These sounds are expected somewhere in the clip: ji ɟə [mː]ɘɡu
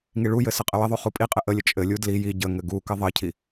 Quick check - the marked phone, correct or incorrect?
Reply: incorrect